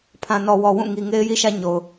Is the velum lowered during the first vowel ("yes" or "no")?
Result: yes